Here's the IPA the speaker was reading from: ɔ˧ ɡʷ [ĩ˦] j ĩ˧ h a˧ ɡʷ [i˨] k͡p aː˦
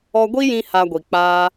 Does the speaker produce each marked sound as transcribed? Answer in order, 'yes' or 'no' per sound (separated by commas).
no, yes